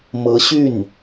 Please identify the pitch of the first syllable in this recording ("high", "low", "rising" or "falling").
rising